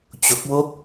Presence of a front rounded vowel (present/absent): absent